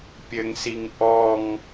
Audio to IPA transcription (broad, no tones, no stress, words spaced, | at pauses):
pʲɘŋsiŋ ʔɔŋ